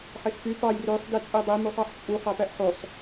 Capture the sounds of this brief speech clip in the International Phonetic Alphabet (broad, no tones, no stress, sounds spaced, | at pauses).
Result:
ħ e s f y p ɑ j r ø sˤ d i t͡sʼ i dˤ i m u sˤ ɑ ħ t͡ʃʼ u χ ɑ p æ ʔ ħ o sˤ